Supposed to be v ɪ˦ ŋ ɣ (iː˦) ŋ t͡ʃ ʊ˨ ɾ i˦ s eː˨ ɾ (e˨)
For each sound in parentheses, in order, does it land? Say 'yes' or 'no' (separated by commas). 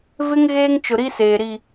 no, no